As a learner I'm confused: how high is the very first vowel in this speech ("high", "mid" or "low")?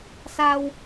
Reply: low